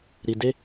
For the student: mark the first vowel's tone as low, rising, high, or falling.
low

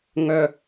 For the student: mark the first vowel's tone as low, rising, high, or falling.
low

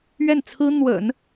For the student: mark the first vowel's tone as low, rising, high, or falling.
falling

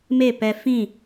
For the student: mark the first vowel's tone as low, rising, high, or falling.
falling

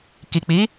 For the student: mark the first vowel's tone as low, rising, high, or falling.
low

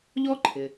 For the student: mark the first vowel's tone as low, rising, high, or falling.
high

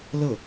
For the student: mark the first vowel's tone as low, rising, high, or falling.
falling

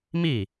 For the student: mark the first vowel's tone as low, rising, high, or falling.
falling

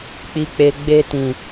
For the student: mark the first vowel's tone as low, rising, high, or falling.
low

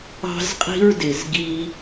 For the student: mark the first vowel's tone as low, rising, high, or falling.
high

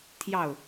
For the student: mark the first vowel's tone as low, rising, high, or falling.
falling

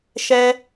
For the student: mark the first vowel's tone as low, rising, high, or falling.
high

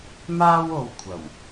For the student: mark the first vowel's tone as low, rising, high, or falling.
high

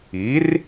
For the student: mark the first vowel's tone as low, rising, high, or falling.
rising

